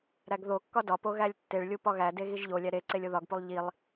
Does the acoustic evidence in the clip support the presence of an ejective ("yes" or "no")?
no